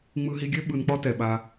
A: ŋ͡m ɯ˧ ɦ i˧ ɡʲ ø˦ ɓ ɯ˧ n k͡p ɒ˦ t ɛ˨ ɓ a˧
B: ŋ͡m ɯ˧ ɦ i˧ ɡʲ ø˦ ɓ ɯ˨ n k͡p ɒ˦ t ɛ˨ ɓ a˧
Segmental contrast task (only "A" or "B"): A